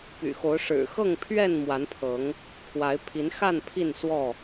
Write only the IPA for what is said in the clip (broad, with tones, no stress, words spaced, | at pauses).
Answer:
py̰˨˩xo˨˦ʊ̯ ʂɻ̩˨˩xɤ˥˨ŋpʰɥɛ˥˨n mwa˨˦npʰɤ˨˦ŋ | kʰwa˨˦ɪ̯pʰi˨˦n xa˥˨n pʰi˥˨nswɔ˥˨